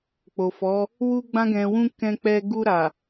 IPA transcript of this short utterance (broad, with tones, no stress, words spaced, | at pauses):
k͡po˨fɔ˨˦ | wu˧ɡ͡bã˧ɡɛ̃˨wũ˧ kɛ̃˧k͡pɛ˧ ɡu˧ɾa˨